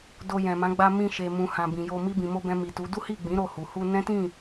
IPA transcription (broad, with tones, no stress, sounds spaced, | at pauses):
d o˧ j ɛ̃˨ m ã˨˦ ɡ͡b a˧ m ĩ˧ ʃ e˨ m ũ˨ h ã˨ b ĩ˨ j o˧ m i˧ b ĩ˨ m o˧ b ɛ̃˧ m i˨ t u˨˦ d u˦ h i˦˨ ɡ͡b ĩ˨˦ ɾ o˦˨ h u˨ h u˧ n ɛ̃˦ t ĩ˦˨